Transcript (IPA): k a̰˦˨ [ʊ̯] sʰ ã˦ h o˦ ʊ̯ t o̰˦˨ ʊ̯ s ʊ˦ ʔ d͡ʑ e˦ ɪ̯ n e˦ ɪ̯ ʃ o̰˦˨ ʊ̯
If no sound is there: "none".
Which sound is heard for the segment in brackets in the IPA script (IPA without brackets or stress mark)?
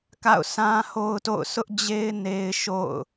ʊ̯